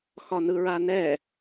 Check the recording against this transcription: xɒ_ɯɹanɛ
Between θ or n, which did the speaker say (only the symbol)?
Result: n